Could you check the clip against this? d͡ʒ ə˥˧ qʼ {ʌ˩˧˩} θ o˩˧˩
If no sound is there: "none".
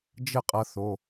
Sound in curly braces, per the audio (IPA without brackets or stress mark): ʌ˧